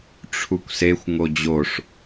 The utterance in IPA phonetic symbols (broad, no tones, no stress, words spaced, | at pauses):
ʈ͡ʂʰukʷsexʷ ŋod͡ʑoʂ